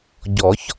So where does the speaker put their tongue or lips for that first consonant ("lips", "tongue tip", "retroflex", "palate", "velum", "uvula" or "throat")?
palate